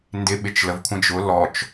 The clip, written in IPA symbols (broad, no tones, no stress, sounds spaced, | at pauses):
n d ɪ ɓ ɪ t͡ʃ l ə v kʷʰ ə̃ d͡ʒ ʊ l ɔ t͡ʃ